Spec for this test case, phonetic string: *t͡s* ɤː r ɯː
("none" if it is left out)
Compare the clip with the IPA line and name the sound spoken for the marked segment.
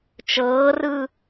t͡ʃ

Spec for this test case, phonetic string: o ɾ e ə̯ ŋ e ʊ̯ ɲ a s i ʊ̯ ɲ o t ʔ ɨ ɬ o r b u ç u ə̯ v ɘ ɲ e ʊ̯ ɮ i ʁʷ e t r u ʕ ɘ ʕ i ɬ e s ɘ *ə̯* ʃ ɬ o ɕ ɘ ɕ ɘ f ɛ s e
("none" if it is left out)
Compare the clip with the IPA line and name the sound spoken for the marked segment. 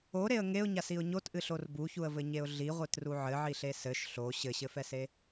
none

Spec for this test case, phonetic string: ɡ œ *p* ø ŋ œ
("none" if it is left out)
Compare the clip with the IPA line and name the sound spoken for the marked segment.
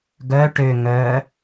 ʈ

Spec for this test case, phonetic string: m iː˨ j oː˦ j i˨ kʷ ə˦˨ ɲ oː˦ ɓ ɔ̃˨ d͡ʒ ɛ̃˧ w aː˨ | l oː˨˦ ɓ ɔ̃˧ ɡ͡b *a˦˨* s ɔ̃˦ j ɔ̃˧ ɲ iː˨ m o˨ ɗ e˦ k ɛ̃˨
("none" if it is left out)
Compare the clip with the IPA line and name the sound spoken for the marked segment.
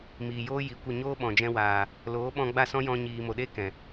a˦˨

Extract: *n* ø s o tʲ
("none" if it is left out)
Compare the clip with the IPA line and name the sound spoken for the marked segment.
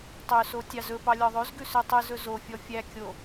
tˤ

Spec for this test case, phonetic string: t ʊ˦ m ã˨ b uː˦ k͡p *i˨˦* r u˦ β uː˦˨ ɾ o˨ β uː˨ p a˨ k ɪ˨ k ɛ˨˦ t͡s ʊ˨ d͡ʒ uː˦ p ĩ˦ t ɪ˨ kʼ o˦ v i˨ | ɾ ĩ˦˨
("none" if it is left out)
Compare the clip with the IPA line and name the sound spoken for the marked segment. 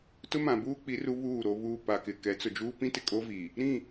i˨˦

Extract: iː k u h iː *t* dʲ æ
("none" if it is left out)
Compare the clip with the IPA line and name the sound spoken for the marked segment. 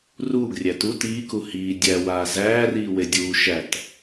none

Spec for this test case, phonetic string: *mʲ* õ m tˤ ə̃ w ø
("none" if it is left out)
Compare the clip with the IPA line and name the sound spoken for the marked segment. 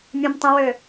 mʲ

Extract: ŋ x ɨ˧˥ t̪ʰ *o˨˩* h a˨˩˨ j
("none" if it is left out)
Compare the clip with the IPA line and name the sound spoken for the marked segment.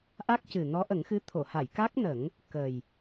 o˨˩˨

